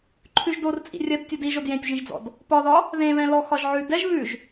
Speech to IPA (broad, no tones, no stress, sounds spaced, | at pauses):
ǃʰ ʉ ʒ d o r t͡sʼ ḭ rʲ ɜ d tʲ o d i ʒ o d j ẽ tʲ ʒ ĩ ʒ d͡z ɔ̰ d | p ɒ ð ɒ | ð ẽ β ɛ̃ l ɔ x ɒ ʒ ʕ ʉ d ɛ ʒ β ʉ ʒ